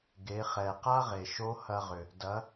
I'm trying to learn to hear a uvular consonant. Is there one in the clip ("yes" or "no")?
yes